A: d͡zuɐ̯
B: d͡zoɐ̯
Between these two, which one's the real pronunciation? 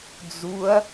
A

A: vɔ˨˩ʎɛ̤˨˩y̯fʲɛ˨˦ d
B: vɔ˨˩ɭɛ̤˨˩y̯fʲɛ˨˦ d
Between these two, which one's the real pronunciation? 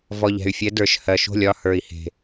A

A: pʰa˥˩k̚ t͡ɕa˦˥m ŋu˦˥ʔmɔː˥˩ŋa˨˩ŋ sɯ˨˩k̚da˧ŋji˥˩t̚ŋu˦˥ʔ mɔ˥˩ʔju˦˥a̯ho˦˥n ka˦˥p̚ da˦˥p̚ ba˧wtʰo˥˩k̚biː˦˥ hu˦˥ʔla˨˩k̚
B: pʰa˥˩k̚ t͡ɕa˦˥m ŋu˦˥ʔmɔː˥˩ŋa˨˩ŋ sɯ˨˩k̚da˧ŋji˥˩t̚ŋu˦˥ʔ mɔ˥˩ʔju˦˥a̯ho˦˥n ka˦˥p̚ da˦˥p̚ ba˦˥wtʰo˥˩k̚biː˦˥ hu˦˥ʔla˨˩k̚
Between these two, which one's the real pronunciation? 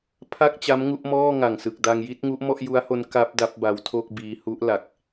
B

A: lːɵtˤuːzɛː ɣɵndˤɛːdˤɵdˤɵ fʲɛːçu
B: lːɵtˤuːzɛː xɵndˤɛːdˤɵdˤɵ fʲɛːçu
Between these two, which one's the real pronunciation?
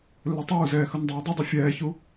B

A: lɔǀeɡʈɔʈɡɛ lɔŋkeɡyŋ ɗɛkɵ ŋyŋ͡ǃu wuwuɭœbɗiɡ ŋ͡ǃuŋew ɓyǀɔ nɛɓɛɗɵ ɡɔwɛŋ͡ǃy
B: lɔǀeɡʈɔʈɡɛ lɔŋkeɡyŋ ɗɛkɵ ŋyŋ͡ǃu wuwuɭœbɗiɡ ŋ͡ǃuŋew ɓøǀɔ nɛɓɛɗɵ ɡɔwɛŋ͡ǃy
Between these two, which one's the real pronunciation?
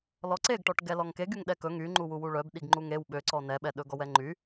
B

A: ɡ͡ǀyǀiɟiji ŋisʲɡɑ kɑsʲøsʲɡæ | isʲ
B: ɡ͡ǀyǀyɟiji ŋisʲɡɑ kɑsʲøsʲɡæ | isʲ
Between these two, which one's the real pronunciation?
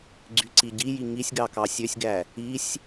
A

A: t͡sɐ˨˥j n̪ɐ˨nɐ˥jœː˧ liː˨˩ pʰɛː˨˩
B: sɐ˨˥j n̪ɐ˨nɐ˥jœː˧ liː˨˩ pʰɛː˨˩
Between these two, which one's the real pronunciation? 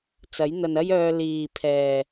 A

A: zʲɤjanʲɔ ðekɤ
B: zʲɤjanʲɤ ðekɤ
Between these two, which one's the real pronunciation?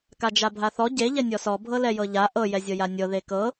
B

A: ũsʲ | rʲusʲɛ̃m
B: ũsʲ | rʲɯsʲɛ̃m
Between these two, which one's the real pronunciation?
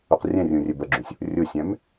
A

